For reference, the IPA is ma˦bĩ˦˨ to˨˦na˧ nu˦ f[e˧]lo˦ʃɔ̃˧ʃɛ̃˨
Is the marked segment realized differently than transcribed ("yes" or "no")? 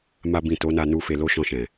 no